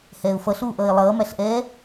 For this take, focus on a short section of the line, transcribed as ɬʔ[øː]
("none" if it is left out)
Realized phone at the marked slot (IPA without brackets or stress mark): ɛː